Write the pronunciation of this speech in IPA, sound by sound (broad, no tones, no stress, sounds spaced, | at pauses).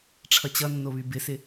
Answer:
ʈ͡ʂʰ ʌ t͡ɕ ʌ nː o β y b ɪ s ɪ